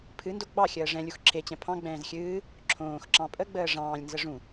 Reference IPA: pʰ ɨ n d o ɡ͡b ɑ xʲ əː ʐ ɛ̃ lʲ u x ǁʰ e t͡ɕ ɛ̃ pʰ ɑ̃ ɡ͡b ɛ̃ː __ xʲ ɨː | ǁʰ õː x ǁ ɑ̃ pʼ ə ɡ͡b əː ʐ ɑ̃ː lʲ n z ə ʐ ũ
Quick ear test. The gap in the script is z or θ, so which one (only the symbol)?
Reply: z